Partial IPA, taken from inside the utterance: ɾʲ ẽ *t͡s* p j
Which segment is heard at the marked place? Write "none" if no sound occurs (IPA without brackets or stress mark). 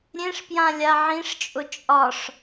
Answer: ʂ